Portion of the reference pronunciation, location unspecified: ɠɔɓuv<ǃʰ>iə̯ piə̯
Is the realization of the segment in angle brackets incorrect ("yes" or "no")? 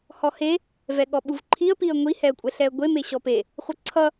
no